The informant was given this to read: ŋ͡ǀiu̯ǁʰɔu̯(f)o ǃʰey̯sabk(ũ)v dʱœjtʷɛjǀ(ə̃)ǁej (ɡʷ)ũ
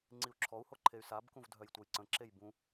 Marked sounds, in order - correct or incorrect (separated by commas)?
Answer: incorrect, correct, correct, incorrect